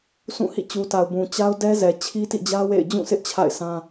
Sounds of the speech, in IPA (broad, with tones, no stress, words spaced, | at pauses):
sũ˦˨hḭ˦˨ t͡ɕu˨ta˨ʊ̯ bũ˨ t͡ɕa˦ʊ̯ dɛ˦zɛ˨ t͡ɕʰi˦tḭ˦˨d͡ʑä˦ wḛ˦˨ɪ̯ d͡ʑũ˦˨sʰɪ˦ʔ t͡ɕʰa̰˦˨ɪ̯sʰã˦